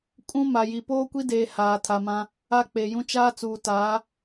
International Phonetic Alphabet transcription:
kʼ ũ˦ m a˨ j i˨ p oː˦ kʷ i˦ d eː˨ h aː˨ tʰ a˨ m ã˦ | a˦ k͡p e˨ j ũ˦ t͡ʃ aː˦ t͡s uː˨ t aː˨˦

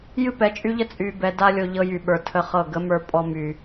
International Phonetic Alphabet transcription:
j ɨ˦ p ɛ˨ t͡ʃʼ y˦ ʎ ə˦ t͡sʼ y˨ b ɛ˨ d a˦ lʲ o˨ ʎ ɤ˦ j y˨ ɓ ə˞˨ tʰ ə˦ χ ɤ˦˨ ɡ ə˨˦ m ə˞˨ pʼ ɔ˨ m y˨

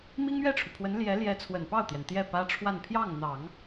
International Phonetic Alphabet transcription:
m i˥ ŋ ɥ ɛ˥˩ ʈ͡ʂʰ u˩ pʰ w ə˧˥ n l j ɛ˧˥ l j ɛ˧˥ t͡sʰ w ə˨˩ n p ɑ˥˩ ʊ̯ t̪ j ɛ˩ n t̪ j ɛ˥˩ p ä˥ ʈ͡ʂʰ w a˥˧ n pʰ j ɑ˥˩ ŋ n̪ ɑ˨˩˦ ŋ

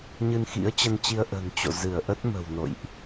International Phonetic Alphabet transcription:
ɲ ɨ˧ n x ḭ˧˥ ə̯ t͡ɕ ə˧ n t͡ɕ i˧ ə̯ ʔ ə̤˨˩ n t͡ɕ o̰˧˨ z ɨ˧˩ ə̯ ʔ ə˦˥ t̚ m ə̤˨˩ w n o̰˧˨ j ʔ

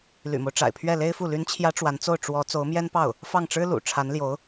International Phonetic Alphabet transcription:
l y̰˨˩ m o˦ ʊ̯ ʈ͡ʂ a̰˨˩ ɪ̯ pʰ ɥ ɛ˥˩ l e˥ ɪ̯ f u˥˩ l y˧˥ n t͡ɕʰ j ä˧˥ ʈ͡ʂ w a˧˥ n t͡s o˥˩ ʊ̯ ʈ͡ʂ w ɔ˧˥ t͡s o˧˥ ʊ̯ m j ɛ˥ n p ɑ˥˩ ʊ̯ | f ɑ˥˩ ŋ ʈ͡ʂ ɻ̩˥ l ṵ˨˩ ʈ͡ʂʰ a˧˥ n l j o˧˥ ʊ̯

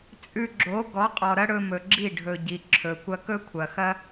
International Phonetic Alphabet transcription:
t͡sʼ ʉ˧ ɡ͡ǁ o˨˦ ɡ ɔ˨˦ qʼ ɔ˨ ɾ ɐ˦ ɽ ɵ˧ m ɵ˨ ɡ͡ǁ i˦˨ ɖʱ ɵ˨ ɟ i˨ ǁʰ ɵ˨ kʷ ɐ˦ k ɵ˦ kʷʰ ɐ˨ x ɐ˦

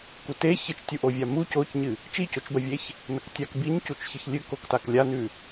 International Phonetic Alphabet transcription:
k u t e ç ɨ t͡ʃ tʲ u ʔ o vʲ a m u c o c ɲ ɨ | t͡ʃ i c o t͡ʃ b ɐ vʲ e ç | n ɐ k tʲ a k b i ɲ c u t͡ʃ ç ɨ ç lʲ ʉ k o k t a k lʲ a n ʉ

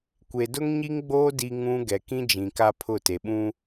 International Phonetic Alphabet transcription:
kʷ e˨ d ʊ˦ ŋ ɲ i˦ ŋ ɡ͡b oː˦ d i˦ ŋ ũ˦ ɡ ɛ˨ k ĩ˦ d͡ʒ ĩ˨ k a˦ pʰ ʊ˦˨ t e˨ ɓ ũ˦

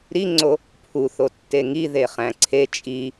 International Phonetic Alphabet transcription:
ɾ i ŋ͡ǀ o | pʰ u θ o tː e ŋ i ð e χ æ̃ ǀʰ e t͡ʃʼ i

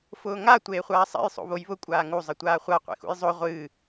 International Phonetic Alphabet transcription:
f ʊː ŋ a tʷ eː χʷ aː sˤ ɛ̰ j sˤ o̰ β o j β ʊ kʷʼ aː ŋ u zˤ ə tʷ aː χʷ a qʷ ḛ x ṵ j zˤ o ʁʷ ɨː

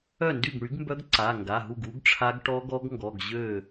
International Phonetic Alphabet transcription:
œ˥˩ n d y˥˩ ɡ ɳ y˩˥ ɡ m b œ˦˥ ɡ ǀ a˩˧˩ ŋ ɡ a˩˧˩ ɦ u˥˩ ɡ u˦˥ ɡ ʈ͡ʂʰ a˦˥ ɡ ʈ ɔ˦˥ ɡ ɔ˦˥ ɡ ŋ ɡ ɔ˩˧˩ ɡ ʑ ø˥˩

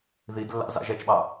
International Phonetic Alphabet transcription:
ð i d lː ɑ̰ z ɑ̰ ʒ ɛ t͡ʃ ɓ ɑ

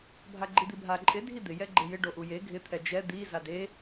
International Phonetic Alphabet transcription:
bʱ a ɡ͡ǃ i d̪ i bʱ a ǃʼ ɪ dʱ i d̪ ɪ j ɛ ɡ͡ǃ e j ɪ ɖ o ʔ u j e ɡʱ ɪ t̪ʰ ɛ d͡ʒ ɛ d̪ i z a d e

